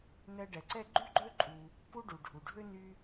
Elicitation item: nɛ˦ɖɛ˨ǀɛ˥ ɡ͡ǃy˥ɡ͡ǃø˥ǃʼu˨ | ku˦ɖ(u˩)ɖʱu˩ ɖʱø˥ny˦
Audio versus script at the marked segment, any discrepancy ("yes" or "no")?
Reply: no